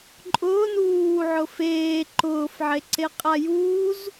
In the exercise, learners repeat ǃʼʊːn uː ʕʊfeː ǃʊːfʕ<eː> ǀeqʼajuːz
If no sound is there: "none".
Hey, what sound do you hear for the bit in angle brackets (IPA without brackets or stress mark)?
e